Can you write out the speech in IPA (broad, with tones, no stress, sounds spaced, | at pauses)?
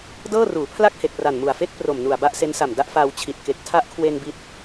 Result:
d ɤː˥˩ r uː˩˦ pʰ l a˥˩ k̚ h e˨˩ k̚ r a˨˩ n m u˨˩ a̯ f e˥˩ k̚ p r o˨˩ m n u˨˩ a̯ b a˥˩ ʔ s e˦˥ n s a˨˩ m d a˥˩ ʔ f aː˧ w t͡ɕʰ i˨˩ t̚ k e˨˩ k̚ tʰ a˦˥ ʔ kʰ w e˧ n b i˦˥ t̚